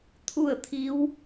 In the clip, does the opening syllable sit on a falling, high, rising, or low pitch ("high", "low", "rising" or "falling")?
falling